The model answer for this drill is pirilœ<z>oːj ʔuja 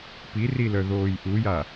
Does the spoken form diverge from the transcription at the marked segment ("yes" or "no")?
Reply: yes